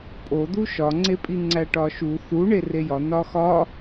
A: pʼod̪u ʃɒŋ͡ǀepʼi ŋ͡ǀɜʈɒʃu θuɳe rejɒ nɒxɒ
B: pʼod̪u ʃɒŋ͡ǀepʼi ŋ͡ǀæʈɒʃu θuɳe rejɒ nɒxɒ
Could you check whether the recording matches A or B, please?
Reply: B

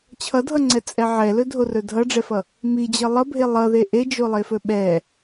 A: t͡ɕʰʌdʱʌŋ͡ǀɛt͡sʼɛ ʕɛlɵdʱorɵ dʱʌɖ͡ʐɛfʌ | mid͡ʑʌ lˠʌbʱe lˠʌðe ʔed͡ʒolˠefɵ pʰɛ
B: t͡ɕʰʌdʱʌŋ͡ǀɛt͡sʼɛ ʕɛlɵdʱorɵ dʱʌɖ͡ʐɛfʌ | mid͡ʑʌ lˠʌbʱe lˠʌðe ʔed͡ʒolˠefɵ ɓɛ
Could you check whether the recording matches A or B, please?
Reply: B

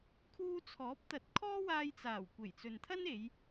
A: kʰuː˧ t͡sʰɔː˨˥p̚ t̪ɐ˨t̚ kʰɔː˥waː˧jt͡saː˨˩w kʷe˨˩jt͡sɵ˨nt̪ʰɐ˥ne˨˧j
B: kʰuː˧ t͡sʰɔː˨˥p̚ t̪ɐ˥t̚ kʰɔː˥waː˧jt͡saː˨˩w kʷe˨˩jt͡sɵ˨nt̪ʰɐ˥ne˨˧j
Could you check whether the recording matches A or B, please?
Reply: A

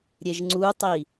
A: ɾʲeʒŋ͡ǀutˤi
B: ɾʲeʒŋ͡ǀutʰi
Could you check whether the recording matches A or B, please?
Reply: A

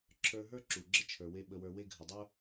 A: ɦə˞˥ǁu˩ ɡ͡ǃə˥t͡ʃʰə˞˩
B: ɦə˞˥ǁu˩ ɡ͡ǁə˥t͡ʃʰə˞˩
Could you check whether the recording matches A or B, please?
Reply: B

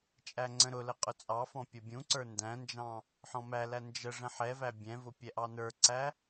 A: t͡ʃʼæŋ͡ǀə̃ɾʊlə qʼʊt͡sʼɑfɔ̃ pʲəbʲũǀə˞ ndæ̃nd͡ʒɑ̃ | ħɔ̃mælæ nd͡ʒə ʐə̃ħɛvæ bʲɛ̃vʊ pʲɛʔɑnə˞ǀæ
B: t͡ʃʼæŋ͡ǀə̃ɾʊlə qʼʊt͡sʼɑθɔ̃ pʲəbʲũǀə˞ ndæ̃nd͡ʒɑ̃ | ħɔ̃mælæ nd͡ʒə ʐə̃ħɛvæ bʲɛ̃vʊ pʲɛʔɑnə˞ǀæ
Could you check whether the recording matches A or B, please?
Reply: A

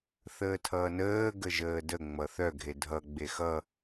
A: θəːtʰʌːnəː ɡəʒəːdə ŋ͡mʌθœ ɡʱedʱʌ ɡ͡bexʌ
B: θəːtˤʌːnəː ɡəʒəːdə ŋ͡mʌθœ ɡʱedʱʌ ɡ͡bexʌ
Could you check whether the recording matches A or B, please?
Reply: A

